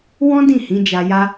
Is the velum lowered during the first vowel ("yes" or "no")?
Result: yes